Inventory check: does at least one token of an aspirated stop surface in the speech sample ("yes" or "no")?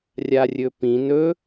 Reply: no